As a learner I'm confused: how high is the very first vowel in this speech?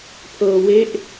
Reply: mid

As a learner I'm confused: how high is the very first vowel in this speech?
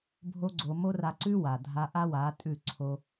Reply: mid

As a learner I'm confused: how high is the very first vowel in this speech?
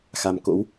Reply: low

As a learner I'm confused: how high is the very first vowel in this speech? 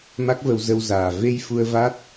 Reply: low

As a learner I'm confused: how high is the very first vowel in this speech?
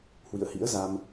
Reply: high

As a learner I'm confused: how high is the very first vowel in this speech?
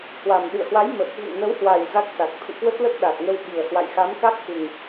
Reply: low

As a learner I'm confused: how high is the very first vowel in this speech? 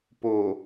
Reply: mid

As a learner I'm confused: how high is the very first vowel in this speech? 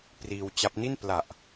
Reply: high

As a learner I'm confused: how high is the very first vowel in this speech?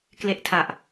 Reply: mid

